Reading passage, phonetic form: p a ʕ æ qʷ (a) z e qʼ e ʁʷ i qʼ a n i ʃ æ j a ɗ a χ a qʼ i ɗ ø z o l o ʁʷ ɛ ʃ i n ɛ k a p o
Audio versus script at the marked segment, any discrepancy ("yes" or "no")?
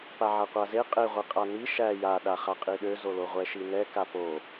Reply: no